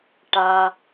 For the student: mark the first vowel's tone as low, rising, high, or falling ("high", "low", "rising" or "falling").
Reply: high